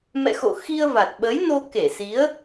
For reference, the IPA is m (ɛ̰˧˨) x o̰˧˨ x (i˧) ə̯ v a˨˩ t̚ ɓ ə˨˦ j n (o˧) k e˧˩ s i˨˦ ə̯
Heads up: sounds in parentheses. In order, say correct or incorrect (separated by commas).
correct, correct, correct